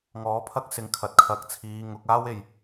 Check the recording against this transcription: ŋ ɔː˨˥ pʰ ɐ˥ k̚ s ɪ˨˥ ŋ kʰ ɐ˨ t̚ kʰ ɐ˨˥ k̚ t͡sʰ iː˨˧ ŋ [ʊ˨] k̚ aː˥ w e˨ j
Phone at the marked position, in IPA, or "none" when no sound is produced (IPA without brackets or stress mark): ʊ˨˥